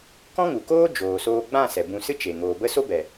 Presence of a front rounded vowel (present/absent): absent